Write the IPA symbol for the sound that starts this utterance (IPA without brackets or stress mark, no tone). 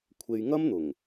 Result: kʷʰ